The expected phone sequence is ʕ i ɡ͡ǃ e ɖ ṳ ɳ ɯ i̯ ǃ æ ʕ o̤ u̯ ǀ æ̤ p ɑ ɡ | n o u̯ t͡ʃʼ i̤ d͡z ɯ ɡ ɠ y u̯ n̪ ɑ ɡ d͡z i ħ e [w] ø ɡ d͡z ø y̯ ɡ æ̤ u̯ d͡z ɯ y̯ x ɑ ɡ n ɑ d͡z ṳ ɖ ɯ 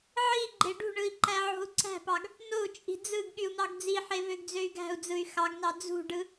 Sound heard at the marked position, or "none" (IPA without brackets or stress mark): v